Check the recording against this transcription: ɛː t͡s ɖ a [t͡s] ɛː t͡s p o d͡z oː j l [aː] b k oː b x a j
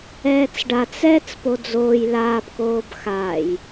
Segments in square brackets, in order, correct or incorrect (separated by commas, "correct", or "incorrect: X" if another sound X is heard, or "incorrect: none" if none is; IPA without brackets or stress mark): correct, correct